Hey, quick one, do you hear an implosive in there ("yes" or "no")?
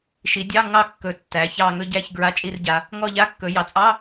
no